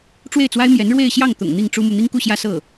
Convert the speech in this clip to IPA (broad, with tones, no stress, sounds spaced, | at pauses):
ʈ͡ʂ w e˥˩ ɪ̯ t͡s w a˥ ɪ̯ m j ɛ˧˥ n ɻ w e˥˧ ɪ̯ ɕ j ɑ˥˩ ŋ t̪ ʊ̰˨˩ ŋ n̪ i˥˩ ŋ ʈ͡ʂ u˥ m u˨ n̪ i˥ ŋ k u˥˧ ɕ j ä˥˧ s ɤ˥˩